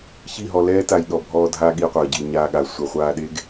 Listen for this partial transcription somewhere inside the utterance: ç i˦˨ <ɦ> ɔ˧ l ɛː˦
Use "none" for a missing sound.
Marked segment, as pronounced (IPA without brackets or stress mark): ɦ